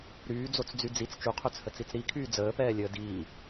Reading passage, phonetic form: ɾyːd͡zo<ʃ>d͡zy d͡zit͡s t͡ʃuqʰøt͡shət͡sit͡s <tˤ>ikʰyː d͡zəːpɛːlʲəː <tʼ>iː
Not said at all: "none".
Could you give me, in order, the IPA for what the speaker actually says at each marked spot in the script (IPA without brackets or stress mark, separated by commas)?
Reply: t͡s, ɾ, d